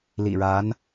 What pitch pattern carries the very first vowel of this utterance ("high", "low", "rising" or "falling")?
low